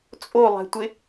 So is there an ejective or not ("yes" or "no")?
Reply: yes